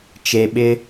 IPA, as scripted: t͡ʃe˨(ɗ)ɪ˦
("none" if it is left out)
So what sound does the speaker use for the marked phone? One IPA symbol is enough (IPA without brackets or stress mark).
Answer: ɓ